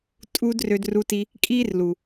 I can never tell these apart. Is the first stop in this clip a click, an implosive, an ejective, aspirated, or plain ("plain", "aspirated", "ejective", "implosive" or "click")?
ejective